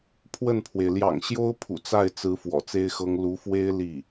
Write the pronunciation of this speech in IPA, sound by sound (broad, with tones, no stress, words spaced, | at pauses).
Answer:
pʰwə˥˩npʰwe˩ɪ̯ ljɑ̰˨˩ŋɕjo˥ʊ̯ pʰṵ˨˩t͡sa˥˩ɪ̯t͡sɹ̩˧˥ fwɔ̰˨˩t͡se˥ɪ̯xɤ˥ŋ lu˧˥fwe˥ɪ̯ li˥˩